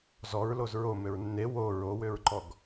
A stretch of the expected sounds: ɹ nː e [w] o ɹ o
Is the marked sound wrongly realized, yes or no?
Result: no